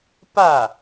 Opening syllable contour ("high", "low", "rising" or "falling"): falling